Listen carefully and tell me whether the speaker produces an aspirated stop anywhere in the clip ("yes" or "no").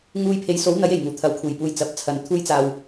yes